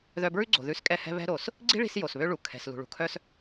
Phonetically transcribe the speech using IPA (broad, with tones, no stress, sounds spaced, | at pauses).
ð œ˧ b ɹ ʉ˥ ɡ͡ǀ o̤˩ ð ʉ˧ s kʼ ɛ˧ h ɛ̤˧ β ɛ̤˧ ɾ o˩ s | ɡ͡ǀ i̤˥ ɭ i̤˧ s j o˩ s β ø˧ ɭ u˩ kʰ ɛ̤˩ s l ṳ˩ ɭ ṳ˩ kʰ œ˧ s